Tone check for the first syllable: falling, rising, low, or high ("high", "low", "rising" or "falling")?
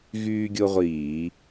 high